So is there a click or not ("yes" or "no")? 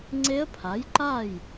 yes